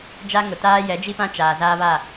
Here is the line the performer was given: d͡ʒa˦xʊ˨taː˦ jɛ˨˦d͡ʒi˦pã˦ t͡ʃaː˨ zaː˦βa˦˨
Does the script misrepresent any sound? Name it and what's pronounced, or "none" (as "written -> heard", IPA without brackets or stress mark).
x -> ŋ